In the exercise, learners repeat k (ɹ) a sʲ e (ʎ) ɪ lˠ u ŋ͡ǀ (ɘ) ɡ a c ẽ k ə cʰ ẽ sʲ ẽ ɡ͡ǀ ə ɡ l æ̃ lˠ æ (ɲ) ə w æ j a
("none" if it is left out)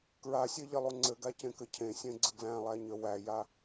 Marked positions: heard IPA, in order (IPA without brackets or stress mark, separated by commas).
ɹ, ʎ, ɘ, ɲ